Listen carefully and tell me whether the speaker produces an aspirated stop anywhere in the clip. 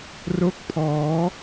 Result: yes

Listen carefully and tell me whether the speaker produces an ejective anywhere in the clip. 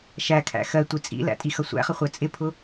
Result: yes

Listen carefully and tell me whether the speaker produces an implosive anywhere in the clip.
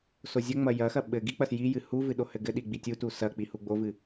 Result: yes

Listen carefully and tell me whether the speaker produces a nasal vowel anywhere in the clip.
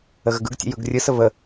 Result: no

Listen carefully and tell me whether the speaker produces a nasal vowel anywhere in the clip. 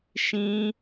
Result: yes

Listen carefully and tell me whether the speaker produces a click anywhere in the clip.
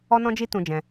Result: no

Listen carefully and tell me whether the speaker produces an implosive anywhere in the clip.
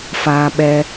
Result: yes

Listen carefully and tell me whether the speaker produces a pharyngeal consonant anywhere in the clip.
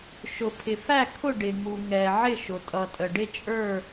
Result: yes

